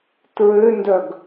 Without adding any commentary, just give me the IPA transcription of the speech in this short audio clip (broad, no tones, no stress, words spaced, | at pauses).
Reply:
tɹøndœɡ